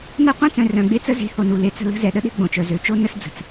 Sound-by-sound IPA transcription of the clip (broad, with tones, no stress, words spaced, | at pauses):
na˦qʷœ̃˦t͡sœ̃˨ rœ̃˨ɡ͡be˦t͡sə˦ ze̤˨˦ho˨nu˨ le˨t͡sə̤˦˨ lə̤˦zɛ˨ɗə˦ɗe̤˦ ɡ͡bõ˨t͡ʃœ˨ zø˨t͡ʃo˦ nə˦sd͡zə̤˨t͡s